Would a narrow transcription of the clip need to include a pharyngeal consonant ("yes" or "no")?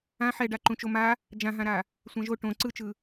yes